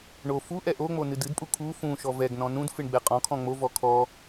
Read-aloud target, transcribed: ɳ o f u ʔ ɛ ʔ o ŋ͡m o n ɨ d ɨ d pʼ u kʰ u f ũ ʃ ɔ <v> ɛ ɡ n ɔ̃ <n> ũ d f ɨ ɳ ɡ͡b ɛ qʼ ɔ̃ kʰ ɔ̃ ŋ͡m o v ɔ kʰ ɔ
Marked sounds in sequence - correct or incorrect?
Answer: correct, correct

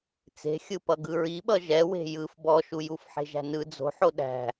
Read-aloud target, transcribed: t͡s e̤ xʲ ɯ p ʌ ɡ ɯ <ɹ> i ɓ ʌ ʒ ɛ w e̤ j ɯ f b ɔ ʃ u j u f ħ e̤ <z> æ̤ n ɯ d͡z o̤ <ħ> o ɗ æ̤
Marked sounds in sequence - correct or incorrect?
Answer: correct, incorrect: ʒ, correct

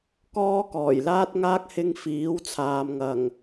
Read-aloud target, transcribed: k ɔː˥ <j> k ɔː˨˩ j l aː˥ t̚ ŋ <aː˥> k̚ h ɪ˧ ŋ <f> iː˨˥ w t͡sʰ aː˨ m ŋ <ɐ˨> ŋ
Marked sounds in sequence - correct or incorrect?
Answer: incorrect: none, correct, correct, incorrect: ɐ˨˩

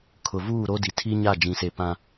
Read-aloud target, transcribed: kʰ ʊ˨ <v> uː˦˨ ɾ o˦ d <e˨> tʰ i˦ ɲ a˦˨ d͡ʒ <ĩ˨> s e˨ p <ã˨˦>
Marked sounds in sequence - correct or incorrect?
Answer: correct, incorrect: i˨, correct, incorrect: ã˦

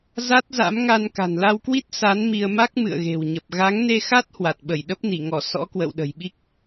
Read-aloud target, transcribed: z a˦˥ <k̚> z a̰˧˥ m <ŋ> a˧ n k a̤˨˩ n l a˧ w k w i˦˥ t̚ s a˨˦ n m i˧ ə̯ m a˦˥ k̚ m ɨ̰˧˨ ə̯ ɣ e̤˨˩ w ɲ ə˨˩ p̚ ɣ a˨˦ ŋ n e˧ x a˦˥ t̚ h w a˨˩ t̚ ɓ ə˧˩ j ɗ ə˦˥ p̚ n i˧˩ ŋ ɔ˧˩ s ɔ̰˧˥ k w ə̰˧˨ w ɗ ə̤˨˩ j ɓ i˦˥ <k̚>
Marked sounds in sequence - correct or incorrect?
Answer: incorrect: t̚, correct, correct

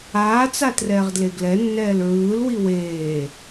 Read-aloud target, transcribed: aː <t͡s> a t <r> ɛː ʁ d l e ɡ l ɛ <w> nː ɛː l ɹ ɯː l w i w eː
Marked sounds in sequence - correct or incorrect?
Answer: correct, correct, incorrect: none

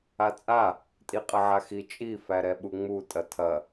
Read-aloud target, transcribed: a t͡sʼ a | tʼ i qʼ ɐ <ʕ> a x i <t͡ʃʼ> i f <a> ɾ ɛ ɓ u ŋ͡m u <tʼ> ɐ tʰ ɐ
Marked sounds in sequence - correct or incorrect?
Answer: correct, correct, incorrect: æ, correct

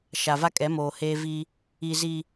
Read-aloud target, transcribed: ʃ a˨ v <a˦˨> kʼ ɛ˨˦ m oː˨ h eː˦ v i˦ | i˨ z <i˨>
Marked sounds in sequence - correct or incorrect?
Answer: incorrect: a˦, correct

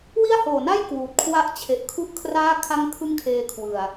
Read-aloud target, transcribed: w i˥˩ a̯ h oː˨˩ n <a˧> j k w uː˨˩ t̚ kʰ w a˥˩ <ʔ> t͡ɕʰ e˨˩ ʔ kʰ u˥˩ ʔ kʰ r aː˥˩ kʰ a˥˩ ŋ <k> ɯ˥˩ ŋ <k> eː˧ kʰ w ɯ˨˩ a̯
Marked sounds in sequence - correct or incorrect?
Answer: incorrect: a˥˩, correct, incorrect: kʰ, incorrect: kʰ

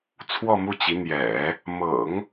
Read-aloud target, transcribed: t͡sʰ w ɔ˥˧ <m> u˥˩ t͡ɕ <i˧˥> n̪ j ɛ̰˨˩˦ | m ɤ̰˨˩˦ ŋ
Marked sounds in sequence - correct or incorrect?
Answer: correct, correct

